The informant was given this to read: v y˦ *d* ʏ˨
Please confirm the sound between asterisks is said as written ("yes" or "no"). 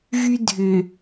no